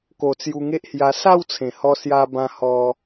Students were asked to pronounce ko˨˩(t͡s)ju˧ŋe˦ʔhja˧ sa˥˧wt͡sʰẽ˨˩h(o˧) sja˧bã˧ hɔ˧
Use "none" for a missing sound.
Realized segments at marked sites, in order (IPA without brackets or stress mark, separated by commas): t͡s, ɔ˧